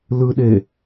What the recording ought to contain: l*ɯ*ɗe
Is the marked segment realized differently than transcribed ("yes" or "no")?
no